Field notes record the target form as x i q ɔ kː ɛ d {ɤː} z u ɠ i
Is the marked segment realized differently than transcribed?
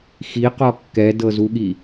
yes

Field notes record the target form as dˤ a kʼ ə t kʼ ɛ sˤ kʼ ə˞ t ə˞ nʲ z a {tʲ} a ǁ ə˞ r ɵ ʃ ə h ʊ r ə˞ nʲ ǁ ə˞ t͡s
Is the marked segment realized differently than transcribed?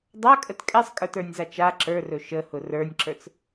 yes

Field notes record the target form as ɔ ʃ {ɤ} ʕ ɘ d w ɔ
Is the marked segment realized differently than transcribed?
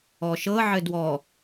no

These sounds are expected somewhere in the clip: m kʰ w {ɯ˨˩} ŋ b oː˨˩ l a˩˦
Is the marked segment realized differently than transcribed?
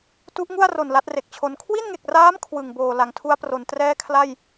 no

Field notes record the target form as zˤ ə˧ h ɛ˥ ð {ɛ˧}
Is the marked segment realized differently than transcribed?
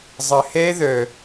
yes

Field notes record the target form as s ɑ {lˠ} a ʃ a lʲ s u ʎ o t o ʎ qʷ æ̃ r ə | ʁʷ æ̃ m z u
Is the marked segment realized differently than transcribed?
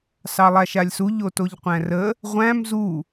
no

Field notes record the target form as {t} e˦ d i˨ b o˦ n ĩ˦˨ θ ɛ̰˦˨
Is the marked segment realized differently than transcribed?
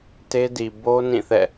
no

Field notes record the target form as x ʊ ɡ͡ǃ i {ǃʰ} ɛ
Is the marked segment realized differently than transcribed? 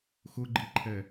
no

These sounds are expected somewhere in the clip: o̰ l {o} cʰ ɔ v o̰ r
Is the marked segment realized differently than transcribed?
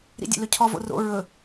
yes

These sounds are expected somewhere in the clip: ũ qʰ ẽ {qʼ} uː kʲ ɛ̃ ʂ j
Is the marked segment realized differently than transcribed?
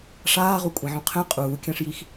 no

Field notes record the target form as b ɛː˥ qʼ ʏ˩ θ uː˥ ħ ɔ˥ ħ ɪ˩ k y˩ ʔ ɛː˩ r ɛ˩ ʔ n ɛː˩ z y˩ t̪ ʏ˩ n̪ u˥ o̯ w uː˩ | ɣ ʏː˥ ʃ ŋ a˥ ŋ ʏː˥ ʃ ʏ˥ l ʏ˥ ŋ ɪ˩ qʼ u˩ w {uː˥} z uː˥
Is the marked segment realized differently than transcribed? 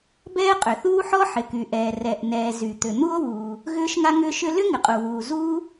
yes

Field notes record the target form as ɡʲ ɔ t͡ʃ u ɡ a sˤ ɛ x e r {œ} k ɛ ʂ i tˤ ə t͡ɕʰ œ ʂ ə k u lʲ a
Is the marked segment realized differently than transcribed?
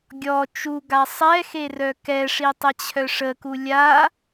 no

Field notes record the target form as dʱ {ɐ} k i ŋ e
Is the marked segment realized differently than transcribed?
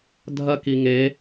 no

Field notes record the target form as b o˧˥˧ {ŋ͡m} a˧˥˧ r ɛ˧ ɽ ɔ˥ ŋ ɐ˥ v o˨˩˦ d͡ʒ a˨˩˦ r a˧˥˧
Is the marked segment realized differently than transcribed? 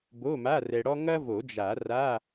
yes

